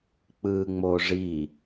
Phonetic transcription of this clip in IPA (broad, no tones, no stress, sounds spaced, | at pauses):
k͡p ɯː ŋ͡m oː ʐ i